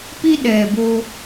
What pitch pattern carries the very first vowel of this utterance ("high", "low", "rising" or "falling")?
high